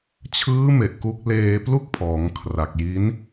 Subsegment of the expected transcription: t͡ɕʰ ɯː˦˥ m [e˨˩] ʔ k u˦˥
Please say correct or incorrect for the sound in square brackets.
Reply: correct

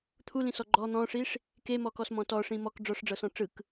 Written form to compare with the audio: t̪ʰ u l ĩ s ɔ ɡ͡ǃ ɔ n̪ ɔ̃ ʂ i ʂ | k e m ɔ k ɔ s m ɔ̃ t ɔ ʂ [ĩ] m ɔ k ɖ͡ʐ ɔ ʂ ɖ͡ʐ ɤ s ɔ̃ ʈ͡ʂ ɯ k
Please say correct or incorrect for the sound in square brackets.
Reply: correct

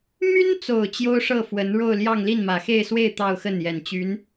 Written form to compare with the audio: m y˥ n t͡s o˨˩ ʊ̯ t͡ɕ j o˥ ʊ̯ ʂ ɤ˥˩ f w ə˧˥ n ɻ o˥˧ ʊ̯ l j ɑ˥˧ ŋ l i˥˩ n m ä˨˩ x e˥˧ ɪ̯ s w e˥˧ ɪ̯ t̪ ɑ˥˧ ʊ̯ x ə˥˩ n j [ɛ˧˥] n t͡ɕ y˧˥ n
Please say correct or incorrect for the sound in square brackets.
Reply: incorrect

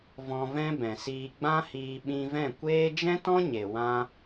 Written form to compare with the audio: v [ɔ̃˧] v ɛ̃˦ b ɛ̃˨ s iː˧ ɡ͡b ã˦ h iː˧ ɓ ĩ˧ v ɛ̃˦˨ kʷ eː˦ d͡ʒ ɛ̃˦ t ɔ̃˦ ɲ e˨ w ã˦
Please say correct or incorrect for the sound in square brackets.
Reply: correct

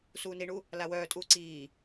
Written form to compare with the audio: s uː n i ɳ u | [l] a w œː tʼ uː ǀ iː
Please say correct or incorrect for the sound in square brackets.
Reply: correct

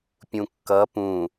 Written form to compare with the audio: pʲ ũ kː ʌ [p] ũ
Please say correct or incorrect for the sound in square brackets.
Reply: correct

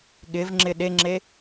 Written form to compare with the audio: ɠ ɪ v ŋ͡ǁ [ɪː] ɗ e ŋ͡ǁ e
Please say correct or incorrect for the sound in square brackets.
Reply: incorrect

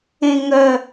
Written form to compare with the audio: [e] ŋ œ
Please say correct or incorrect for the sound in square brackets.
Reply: incorrect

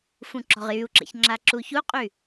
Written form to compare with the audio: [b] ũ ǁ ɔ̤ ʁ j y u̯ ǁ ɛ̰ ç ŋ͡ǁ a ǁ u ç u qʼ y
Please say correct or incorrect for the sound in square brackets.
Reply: incorrect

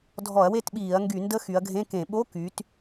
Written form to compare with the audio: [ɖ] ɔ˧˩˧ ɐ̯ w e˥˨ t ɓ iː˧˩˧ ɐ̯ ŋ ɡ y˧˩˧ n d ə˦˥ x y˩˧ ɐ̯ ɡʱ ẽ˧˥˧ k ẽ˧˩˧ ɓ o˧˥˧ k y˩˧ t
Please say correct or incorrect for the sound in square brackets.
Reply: incorrect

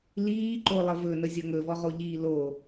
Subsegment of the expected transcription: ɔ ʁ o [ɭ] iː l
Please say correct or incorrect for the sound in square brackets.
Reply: incorrect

